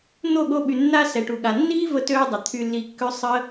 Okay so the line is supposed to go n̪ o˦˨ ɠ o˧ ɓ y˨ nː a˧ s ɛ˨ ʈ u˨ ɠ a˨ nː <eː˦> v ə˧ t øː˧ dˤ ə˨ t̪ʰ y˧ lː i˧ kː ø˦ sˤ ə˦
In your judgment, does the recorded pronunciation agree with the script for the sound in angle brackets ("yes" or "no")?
no